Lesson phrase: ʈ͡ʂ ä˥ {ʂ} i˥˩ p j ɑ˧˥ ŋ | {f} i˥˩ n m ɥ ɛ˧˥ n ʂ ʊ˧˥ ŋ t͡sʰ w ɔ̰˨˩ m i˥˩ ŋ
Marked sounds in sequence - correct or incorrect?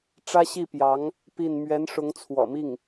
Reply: incorrect: ɕ, incorrect: p

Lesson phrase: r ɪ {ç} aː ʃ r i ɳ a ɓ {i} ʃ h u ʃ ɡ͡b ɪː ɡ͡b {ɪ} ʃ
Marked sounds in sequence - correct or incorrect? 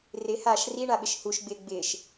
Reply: incorrect: h, incorrect: ɪ, incorrect: ɪː

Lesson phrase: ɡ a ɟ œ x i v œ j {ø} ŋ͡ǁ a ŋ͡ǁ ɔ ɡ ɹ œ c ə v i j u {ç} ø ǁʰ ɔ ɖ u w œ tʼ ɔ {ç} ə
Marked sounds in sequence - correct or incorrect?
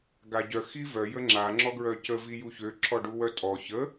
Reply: incorrect: ə, correct, correct

